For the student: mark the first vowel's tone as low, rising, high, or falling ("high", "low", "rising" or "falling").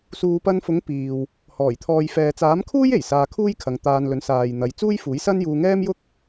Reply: low